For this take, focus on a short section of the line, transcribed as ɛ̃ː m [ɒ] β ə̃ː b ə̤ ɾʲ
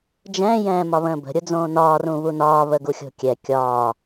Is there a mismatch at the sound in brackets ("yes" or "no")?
no